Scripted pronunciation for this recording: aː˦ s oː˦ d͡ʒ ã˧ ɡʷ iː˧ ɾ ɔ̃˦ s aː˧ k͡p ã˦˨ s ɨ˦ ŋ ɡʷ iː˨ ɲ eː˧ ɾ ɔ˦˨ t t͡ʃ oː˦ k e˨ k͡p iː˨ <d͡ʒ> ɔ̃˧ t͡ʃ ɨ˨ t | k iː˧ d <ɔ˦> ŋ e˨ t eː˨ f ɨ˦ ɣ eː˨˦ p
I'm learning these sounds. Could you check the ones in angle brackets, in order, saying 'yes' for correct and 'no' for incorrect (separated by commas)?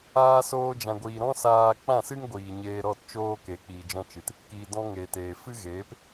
yes, no